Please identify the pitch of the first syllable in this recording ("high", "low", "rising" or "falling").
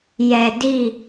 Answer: low